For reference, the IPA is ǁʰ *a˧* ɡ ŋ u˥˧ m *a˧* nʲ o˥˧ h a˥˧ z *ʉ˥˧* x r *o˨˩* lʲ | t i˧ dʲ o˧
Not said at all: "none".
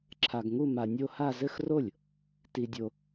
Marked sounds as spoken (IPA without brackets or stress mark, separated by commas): a˧, a˧, ɘ˥˧, o˥˩